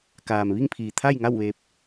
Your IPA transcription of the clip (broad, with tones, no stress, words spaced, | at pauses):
kaː˩mʋi˥˨ŋpʰiː˩ t̪ʰa˥˨jŋa˥˨wʋeː˧p̚